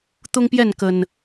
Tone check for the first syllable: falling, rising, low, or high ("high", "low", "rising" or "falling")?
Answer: high